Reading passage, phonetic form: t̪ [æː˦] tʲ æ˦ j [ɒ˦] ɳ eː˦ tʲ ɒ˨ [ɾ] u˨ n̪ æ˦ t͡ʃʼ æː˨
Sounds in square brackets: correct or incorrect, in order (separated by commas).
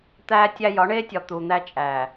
correct, incorrect, incorrect